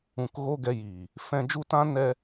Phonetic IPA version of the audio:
ũ˨kɣo˧ ɡɛ˧jiː˨ | fɛ̃˧d͡ʒu˦tã˦ nɛ˦

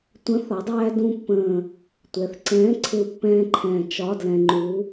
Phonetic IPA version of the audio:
tʷə̃˨˥θɒ˩˧dˤæː˧ dũ˧pːə̃ː˨˩ | tʷɛ˩˧θǀɛ̃ː˨˥ ǀʰɪ˧u̯pːɛ̃ː˧ǃʰɛ̃ː˨˩ t͡ʃɒ˧˥˧dlɛ̃˧ ŋ͡ǃu˨˥

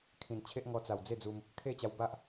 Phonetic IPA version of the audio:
kʰĩ˨˩nt͡ɕʰe˦ʔŋɔ˧ t͡sa˨˩wd͡ze˥˧d͡zu˧m | kʰe˥˧t͡ɕa˧w ba˦ʔ

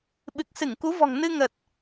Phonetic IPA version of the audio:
ɓɨ˨˩k̚sɨ˧˩ŋku˨˦vɔ̤˨˩ŋ nɨ˧ŋə˨˩t̚

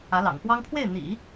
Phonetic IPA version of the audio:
ä˧˥lɑ̰˨˩ŋfwɑ˥ŋ pʰwe˥˩ɪ̯n̪ḭ˨˩˦

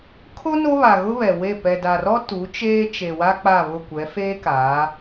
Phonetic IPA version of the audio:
kʰo˦ no˦βa˨ɣʊ˦ βɛ˨we˦˨ pɛ˨da˨rɔ˦ tu˨˦t͡ʃeː˦t͡ʃe˨wa˦ k͡pa˦˨βʊ˦˨kʷɛ˨˦ feː˦ kaː˨˦

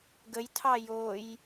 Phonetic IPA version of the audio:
ɡəjtʰɑ joj

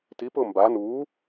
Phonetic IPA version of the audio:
tipʊː mba nu

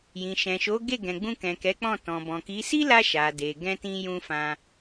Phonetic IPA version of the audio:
jĩ˨ʃɛ̃˨ʃo˨˦ ɡe˦˨ ɡɛ̃˨ɡ͡bũ˧kɛ̃˨ kɛ˨˦k͡pɔ̃˦˨ tɔ̃˨ bɔ̃˨ki˨˦ si˦la˧ ʃa˨ de˨ ɡɛ̃˧tĩ˧jũ˧ fã˧

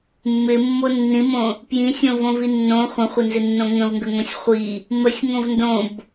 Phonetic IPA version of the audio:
mːɪmːo nːĩmõ | pjĩsʲõvõvi nːõ χʷə̃χʷənzɪnːõ ŋə̃vŋɡəŋõsʲ χʷi | məsʲŋõv ndõb

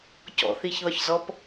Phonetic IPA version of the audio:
cɔ̰θiçðɒçzɔp

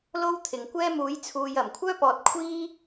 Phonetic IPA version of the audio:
lo˥wt̪ʰɪ˨ŋkʷɛː˥ muː˨˥jt͡sʰuː˨j ɐ˨˩mkʷʰœː˥ pɔː˧t̚kʷʰiː˥

